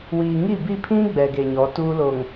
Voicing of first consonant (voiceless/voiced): voiced